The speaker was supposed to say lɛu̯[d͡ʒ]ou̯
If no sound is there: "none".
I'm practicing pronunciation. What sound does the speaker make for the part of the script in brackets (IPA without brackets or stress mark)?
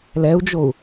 d͡ʒ